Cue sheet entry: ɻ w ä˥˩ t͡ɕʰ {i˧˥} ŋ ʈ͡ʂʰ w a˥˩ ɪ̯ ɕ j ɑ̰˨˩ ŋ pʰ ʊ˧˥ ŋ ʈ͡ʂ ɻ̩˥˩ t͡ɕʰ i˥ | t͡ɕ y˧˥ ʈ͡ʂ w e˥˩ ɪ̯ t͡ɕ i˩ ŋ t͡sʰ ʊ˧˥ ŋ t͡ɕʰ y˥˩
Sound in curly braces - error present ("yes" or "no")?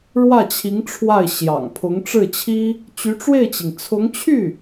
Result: no